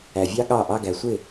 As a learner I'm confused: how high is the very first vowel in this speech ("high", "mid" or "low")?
low